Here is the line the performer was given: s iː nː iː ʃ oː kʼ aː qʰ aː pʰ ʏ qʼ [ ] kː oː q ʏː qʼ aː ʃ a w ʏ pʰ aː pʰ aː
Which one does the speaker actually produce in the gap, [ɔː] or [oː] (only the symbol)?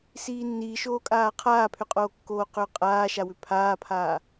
oː